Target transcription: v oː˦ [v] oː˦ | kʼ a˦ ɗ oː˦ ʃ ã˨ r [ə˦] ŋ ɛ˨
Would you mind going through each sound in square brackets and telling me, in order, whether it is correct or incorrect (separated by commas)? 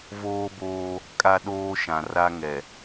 incorrect, incorrect